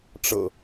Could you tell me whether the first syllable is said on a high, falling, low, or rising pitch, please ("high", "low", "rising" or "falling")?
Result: low